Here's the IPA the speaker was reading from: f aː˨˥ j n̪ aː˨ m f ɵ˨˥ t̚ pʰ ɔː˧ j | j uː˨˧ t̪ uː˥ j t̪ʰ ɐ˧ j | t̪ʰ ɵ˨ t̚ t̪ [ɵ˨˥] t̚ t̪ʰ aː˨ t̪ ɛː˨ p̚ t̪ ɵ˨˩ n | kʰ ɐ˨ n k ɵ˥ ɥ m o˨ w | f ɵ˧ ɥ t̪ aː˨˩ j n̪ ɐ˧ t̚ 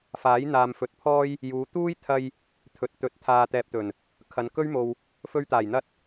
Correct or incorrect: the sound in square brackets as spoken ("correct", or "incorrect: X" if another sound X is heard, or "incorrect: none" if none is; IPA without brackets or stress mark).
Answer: correct